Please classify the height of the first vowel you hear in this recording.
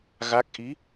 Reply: low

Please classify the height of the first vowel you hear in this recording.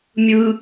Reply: high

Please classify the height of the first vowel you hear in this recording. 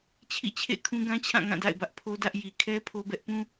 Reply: high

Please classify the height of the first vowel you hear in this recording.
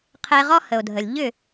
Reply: mid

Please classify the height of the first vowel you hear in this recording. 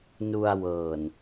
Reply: high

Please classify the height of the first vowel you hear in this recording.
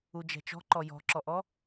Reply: high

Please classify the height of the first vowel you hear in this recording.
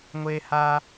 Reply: mid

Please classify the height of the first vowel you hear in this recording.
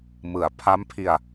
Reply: high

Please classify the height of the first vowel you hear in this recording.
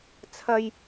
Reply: low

